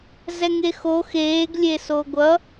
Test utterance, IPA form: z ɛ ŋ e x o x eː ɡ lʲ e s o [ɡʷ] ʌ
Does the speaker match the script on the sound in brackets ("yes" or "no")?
yes